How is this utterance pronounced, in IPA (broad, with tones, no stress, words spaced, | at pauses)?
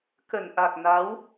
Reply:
kə˧˩nʔa˨˩k̚na˨˦w